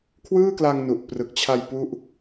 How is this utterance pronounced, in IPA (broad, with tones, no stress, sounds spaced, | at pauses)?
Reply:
kʰ w ɯː˥˩ k l a˧ ŋ n u˨˩ ʔ p r ɯ˨˩ k̚ t͡ɕʰ a˧ j p u˦˥ ʔ